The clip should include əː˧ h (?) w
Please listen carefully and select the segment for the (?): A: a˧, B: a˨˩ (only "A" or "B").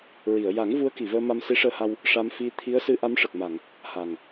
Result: A